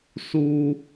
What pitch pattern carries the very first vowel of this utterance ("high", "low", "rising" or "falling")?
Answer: high